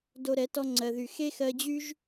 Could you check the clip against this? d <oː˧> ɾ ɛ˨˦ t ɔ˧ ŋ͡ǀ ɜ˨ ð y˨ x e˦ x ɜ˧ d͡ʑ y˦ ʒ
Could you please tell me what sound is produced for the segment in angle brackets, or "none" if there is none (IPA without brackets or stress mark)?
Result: o˧